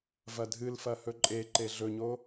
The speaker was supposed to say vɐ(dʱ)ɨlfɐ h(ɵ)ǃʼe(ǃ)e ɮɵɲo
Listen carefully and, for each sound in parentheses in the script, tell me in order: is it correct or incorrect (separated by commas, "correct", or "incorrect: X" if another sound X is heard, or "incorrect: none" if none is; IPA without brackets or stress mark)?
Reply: correct, correct, correct